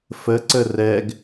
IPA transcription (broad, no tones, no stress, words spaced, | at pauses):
fəǀə rɛɡ